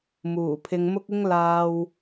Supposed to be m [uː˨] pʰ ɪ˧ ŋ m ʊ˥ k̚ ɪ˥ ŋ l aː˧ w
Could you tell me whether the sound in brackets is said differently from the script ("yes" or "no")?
yes